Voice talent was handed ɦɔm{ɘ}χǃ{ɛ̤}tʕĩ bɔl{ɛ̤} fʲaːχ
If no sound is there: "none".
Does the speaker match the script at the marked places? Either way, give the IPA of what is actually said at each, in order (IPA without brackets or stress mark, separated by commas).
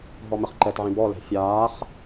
ɘ, ɛ, ɛ̤